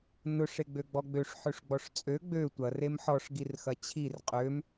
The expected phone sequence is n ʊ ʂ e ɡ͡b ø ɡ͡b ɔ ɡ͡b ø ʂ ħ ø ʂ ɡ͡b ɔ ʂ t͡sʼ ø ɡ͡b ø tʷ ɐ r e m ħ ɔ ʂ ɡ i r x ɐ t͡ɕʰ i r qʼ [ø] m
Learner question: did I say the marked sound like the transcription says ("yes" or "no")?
yes